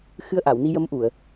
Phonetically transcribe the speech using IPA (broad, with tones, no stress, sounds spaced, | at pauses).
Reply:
x ɨ˧ ə̯ ʔ a˨˩˨ w n i˧ j ə˧˥ m ʔ u˨˩˨ ə̯